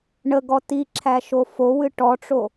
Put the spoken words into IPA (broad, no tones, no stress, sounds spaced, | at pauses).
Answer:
ɳ ə ɡ ɔ t i ǁʰ æ ʃ o f o w ɨ ʈ ɔ ʈ͡ʂ o